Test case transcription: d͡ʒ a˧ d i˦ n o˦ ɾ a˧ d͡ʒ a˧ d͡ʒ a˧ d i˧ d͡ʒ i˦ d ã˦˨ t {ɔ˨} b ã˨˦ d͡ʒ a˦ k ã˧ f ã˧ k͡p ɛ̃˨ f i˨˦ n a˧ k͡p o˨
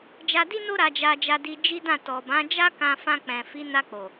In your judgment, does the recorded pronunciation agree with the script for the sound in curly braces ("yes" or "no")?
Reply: yes